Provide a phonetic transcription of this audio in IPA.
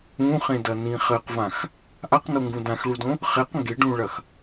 ũ χ ẽ d ɐ n ĩ χ ɘ q v ã x | ʔ a q n o ŋ ɡ ũ d ã x ɭ u d õ | χ e q ŋ ɡ e ɖ ũ ɭ ɐ x

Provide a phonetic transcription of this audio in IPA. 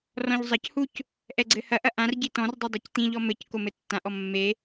r ɔ̃ ʎ zˤ ɐ c h u c | ʔ ɛ ɡ͡ǀ ɘ h ɐ ʔ ɐ ʔ ã r ɟ i t ɔ̃ r dˤ ɛ dˤ ɛ c t̪ ĩ ʎ ɔ m ɘ c k o m ɘ tː ã ʔ ɔ mː e

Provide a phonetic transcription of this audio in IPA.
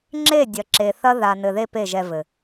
ŋ͡ǁ e˦˨ dʲ ɐ˨ ǁ e˨ θ ɐ˦ ð a˨ n ɘ˨ ð e˧ p e˦˨ ʒ ɛ˧ v ɘ˨

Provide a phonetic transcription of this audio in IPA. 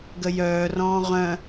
ɡ ə j œː r ɔ̃ː ʁ œ̃

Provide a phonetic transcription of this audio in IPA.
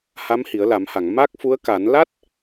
h a˧˥ m h i˨˩˦ ə̯ l a˨˩˦ m h a˨˩˨ ŋ m a˦˥ k̚ f u˧˥ ə̯ k a˨˩˦ n l a˦˥ t̚

